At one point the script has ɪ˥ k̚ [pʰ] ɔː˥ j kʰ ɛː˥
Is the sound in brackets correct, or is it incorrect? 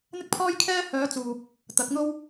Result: correct